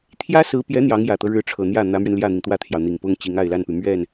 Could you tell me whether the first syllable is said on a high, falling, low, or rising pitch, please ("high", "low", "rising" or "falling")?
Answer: high